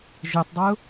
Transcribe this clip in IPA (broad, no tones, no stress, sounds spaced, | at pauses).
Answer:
ʒ e tˤ dˤ ɜ ʊ̯